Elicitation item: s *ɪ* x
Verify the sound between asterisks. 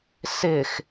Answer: correct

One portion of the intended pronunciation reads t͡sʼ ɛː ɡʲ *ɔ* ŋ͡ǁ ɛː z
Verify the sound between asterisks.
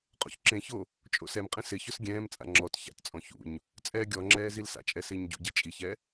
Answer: correct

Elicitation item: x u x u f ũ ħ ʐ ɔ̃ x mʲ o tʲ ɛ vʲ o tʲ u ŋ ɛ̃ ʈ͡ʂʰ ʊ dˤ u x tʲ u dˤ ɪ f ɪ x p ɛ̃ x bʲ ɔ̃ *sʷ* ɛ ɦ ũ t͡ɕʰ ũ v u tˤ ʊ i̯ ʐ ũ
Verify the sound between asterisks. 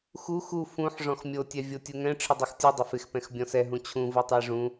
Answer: incorrect: s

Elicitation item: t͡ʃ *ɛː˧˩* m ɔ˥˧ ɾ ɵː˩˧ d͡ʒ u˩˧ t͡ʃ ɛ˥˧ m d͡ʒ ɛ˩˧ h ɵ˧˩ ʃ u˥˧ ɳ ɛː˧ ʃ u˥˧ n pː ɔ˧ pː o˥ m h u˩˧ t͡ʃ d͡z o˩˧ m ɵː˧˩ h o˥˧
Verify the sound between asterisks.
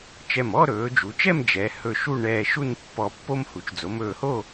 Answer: incorrect: ɛ˧˩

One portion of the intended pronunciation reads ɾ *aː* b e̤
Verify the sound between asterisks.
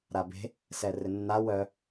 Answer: incorrect: a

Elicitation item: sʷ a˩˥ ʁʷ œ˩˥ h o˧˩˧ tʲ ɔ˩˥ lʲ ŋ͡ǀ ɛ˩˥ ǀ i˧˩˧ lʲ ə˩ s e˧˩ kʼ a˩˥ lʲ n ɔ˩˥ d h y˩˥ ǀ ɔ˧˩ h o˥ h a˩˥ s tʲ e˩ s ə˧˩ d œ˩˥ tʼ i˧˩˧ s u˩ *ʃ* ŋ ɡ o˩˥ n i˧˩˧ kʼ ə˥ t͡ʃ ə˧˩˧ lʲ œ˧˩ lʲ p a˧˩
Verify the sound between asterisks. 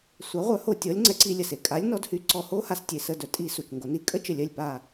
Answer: incorrect: t͡ʃ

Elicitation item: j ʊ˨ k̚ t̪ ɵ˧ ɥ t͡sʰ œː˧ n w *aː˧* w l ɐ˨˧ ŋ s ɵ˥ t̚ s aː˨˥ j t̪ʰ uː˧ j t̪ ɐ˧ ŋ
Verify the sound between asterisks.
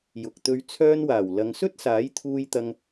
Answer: incorrect: aː˨˩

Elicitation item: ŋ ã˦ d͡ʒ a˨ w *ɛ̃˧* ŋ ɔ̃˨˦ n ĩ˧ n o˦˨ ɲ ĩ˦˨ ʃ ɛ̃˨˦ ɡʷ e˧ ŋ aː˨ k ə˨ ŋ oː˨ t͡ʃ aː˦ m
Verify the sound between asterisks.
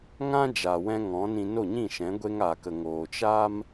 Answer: correct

